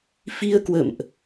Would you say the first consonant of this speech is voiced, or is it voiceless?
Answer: voiceless